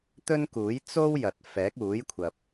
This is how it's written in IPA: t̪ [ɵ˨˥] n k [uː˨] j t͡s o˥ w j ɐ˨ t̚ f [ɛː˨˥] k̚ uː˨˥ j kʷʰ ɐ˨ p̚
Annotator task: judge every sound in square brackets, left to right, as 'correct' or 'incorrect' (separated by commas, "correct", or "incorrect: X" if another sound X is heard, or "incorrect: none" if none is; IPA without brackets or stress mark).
incorrect: ɵ˥, incorrect: uː˨˥, correct